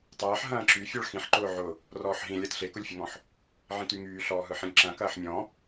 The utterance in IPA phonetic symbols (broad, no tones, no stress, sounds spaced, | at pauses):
tˤ ɐː ħ ɦ ɐ̃ː ǁ y fʲ ɔ ɭ x ĩ ħ ǃ ʊː ʕ ʊ | r ɔː ħ ɦ ĩ lʲ ɐ t ɬ e k ʊ lʲ fʲ ʊ ŋ ɔ̃ ħ | ʕ ĩ t y ŋ yː ɬ ɔː ɦ ɯ ħ ĩ lʲ ǁ ɐ̃ k ɐː ħ mʲ ɔ̃